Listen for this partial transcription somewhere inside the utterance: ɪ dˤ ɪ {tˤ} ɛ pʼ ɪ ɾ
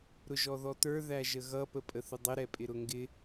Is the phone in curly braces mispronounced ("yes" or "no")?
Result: yes